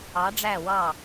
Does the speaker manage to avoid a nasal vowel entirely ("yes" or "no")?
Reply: yes